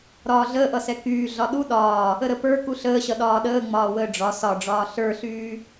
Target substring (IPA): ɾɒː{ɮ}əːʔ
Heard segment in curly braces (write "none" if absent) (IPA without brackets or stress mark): ɮ